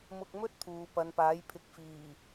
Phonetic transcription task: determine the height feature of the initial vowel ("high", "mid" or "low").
high